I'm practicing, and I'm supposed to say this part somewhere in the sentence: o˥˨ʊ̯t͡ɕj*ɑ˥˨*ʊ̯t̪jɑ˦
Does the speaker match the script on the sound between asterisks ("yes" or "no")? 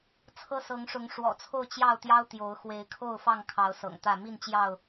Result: yes